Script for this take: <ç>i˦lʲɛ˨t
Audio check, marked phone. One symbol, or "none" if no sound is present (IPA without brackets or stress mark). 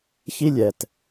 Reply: ç